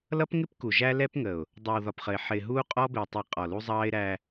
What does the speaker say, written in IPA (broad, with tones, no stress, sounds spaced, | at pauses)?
l ʌ˦ p ŋ ɪ˦ p k u˨ ʒ æ˦ l ɛ˦ p ŋ ə˨ ʊ̯ | dˤ ɛ˨ w ð ɒ˨ p χ ə˨ ɪ̯ ħ ɪː˨ ɦ uː˦ qʼ ɔ˦ b ɪː˨ tˤ i˨ qʼ ɔ˨ l u˦ zˤ ɑː˦ ɪ̯ ɾ æ˦